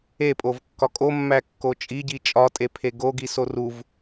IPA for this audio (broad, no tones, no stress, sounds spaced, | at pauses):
e pʼ o v kː ɒ kʼ o mː æ kː o t͡ʃʼ i ɟ i t͡ʃʼ ɒ tʼ e pʰ e ɡ o ɡ i s o r u v